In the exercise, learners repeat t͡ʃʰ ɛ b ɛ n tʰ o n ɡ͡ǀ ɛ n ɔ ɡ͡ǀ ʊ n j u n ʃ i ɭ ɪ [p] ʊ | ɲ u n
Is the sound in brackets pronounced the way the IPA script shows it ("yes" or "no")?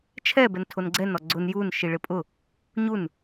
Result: no